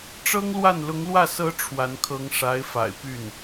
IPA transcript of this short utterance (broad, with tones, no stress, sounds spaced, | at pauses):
ʈ͡ʂ ɤ˥ ŋ l w a˥˩ n l ʊ˧˥ ŋ l w ä˥˩ s ɤ˧˥ ʈ͡ʂʰ w a˧˥ n kʰ ɤ˧˥ ŋ ʂ a˧˥ ɪ̯ f a̰˨˩ ɪ̯ p y˥˩ n